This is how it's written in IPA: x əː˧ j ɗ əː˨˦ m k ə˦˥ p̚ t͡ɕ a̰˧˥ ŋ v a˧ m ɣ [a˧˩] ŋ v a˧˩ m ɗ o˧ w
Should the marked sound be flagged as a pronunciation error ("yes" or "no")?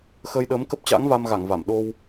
no